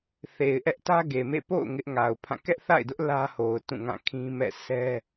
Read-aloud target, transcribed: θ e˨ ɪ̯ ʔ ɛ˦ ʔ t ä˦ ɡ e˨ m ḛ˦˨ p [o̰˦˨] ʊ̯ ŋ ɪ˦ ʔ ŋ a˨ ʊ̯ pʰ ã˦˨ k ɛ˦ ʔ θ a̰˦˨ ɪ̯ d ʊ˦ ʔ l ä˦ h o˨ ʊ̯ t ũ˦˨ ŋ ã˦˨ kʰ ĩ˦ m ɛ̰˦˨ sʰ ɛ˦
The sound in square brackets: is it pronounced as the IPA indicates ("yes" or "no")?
yes